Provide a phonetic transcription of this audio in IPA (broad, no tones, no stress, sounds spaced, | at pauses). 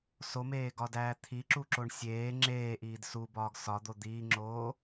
s o m eː ɡ ɒ d æː t̪ʰ i ǁ u ǁ o ɳ sʲ eː ŋ͡ǁ eː ʔ iː d s u b ɒː ɡ s ɒ d̪ o d̪ iː ŋ͡ǁ oː